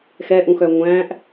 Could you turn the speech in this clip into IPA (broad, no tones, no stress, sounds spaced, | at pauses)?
x ɛ ʔ ũ x œ ŋʷ æ̃ ʔ